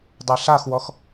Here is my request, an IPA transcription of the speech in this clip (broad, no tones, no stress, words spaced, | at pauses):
dˤeɬaxwɔx